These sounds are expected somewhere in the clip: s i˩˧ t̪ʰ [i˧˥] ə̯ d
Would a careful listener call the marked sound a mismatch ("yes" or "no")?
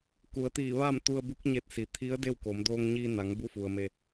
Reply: no